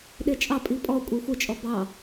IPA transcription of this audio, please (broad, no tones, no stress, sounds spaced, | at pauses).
ɗ e t͡ʃʼ ɑ pʼ i pʼ ɔ kʷʼ e xʷ e t͡ʃʼ ɔ b ɑ